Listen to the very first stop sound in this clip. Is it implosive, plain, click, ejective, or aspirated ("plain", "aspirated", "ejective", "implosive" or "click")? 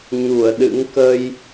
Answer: implosive